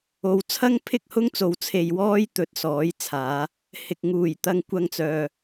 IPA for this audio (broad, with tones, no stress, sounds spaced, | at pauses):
o˨˧ w t͡sʰ ɐ˥ ŋ pʰ ɪ˥ k̚ h ʊ˥ ŋ t͡s o˨˧ w t͡sʰ e˨ j w ɔː˥ j t̪ ɵ˨˥ t̚ s ɔː˨˥ j t͡sʰ aː˨˧ | h ɪ˨ k̚ ŋ uː˨˩ j t̪ ɐ˧ ŋ kʷ ɐ˧ ŋ t͡s œː˨